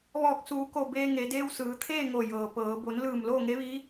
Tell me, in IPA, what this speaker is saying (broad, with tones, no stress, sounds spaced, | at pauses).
ʋ ɔː˧˩ k̚ s uː˩˧ k o˧˩ b eː˧ ŋ e˩˧ d eː˧ w s ɯː˩˧ t̪ʰ eː˥˨ ŋ o˧˩ j ɤː˩ p ɤː˩˧ b o˩˧ n l ɯː˧˩ m l oː˥˨ ŋ e˧˥ ʋ iː˧˥